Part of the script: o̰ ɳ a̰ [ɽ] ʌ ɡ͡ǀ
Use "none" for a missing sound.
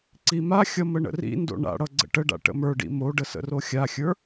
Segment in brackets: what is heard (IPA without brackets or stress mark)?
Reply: ɽ